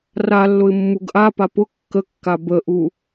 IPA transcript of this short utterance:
r a lː ʊ ɪ̯ mː u ɡ ʔ a p a p ʊ kː ə kː a b ə ʔ u

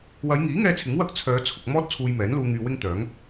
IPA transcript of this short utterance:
w ɐ˨˧ j ŋ iː˨˥ ŋ ɛː˧ t͡sʰ ɪ˨˥ ŋ w ɐ˥ k̚ t͡sʰ œː˨˧ t͡sʰ ʊ˨ k̚ m ɔː˥ t̚ t͡sʰ uː˧ j m ɛː˨˥ n l uː˧ ŋ yː˧ w ɪ˥ ŋ t̪ œː˨˥ ŋ

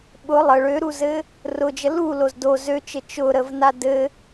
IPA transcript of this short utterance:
ɓ ʊ lˠ ə ɭ ø ɾ u z ɘ | r ʊ d͡ʒ ə l u l o z d o z ø t͡ʃ ɘ t͡ʃ ʊ ɾ ə v n a d ɘ

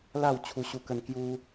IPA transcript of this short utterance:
l a˥˧ w t͡ɕʰ u˦ ɕ u˦ k ə˦ n k j u˦

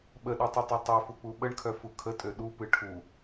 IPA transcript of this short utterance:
ɓ ə ɗ u tˤ ɨ tˤ ø tˤ ø f u k͡p u ɓ ə ɳ kʰ œ f u kʰ ə tʼ ø ɗ u p ɨ ʈʰ u

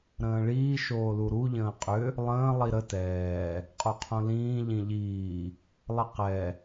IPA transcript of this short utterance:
ɾ ə̃ː ɭ iː ʃ oː l u ɾ u ʎ ə̃ː qʼ ʏ | lˠ ə̃ː lˠ i ɾ ə t ɛː | qʼ o qʰ õ l ĩː ʎ ĩ ʎ iː | lˠ ə q ɛ

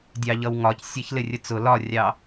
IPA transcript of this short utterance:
dʲ ɑ ʎ ʌ w ŋ ɒ c sʲ ɛ ç l ɪ rʲ ə t͡s ʊ l ɒ rʲ ɑ

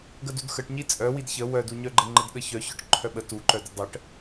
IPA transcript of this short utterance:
ɡ ə d u d x ə ʈ ɲ i t͡sʼ œ w i d ç ə w œ d u ɲ œ ɡ͡ǃ ə ŋ͡ǃ ə d ɠ ə ç œ ç œ ʈ ǃʰ œ ɓ ə t u ǃ œ d ə dˤ ə ʈ

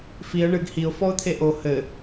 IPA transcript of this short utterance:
f i ə̯ ɳ ɨ ɡ h i ʊ̯ f ɔ ʊ̯ t̪ʰ e ʔ o h ɘ

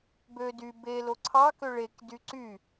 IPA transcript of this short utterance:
b ø d y b e l o ǀʰ ɑ k ø ɭ e k d y ǀ y

